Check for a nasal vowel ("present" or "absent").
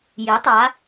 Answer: absent